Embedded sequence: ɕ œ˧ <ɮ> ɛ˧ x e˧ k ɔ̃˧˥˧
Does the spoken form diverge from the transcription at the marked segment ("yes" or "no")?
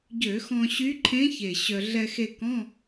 no